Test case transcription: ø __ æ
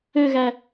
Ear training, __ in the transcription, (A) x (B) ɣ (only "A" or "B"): B